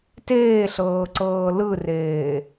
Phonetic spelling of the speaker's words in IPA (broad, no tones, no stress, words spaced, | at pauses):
teːɬɤːǀɤː lɯreː